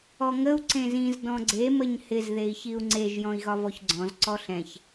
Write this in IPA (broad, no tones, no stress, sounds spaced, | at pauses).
ɔ ŋ ə u̯ ǀ ẽ z ĩ z d ɔ̃ ɡ͡ǀ e m ə ɲ h ɪ z ð e i̯ ç i u̯ ŋ͡ǀ e ʒ j ɔ̃ i̯ ɣ ɒ v ɔ ç ɡ͡ǀ ɔ̃ z ǀ ɔ ɬ ɛ̃ ç